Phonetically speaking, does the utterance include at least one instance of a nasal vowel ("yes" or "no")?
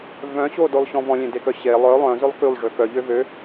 yes